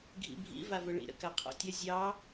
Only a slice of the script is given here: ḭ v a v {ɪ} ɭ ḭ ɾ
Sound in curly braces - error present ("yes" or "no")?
yes